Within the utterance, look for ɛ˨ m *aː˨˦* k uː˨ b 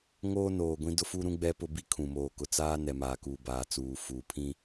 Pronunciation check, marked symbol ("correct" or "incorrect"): incorrect